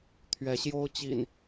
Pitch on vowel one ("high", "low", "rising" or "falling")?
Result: rising